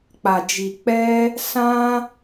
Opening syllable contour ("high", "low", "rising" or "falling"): low